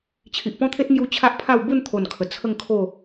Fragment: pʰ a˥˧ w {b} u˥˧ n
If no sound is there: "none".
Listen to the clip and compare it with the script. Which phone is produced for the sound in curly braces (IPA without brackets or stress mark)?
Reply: b